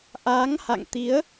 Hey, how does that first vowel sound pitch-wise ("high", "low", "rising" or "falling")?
rising